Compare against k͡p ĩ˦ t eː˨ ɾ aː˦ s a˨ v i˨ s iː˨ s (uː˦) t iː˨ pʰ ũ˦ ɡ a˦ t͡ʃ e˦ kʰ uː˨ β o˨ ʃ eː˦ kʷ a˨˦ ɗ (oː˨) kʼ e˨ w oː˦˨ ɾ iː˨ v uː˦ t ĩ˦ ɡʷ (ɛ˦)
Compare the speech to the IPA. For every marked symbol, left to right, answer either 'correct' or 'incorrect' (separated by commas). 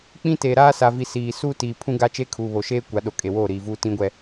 correct, incorrect, correct